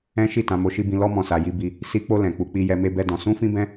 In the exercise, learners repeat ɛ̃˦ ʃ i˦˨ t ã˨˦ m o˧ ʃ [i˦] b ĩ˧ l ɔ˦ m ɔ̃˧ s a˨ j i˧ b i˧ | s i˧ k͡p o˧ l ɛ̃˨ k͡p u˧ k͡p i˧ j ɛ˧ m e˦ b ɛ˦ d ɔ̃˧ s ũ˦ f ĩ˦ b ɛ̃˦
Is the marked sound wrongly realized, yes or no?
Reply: no